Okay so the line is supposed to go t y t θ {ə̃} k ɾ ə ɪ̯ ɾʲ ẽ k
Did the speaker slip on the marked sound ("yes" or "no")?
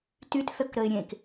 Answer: yes